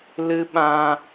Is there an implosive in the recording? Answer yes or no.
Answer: yes